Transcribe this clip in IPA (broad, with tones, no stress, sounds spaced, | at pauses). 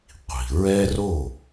qʷ i̤˩ ɹ ɛ˥ r o˥˩